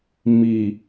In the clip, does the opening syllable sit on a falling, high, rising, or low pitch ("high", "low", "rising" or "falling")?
low